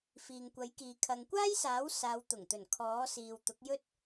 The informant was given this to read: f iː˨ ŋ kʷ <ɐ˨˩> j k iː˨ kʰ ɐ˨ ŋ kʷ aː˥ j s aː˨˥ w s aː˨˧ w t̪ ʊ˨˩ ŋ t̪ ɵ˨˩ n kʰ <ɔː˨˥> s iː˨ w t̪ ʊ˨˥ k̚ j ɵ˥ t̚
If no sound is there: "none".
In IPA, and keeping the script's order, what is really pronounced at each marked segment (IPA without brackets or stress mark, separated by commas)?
ɐ˨˥, ɔː˨˥